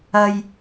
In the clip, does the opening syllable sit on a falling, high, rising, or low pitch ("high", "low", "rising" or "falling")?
low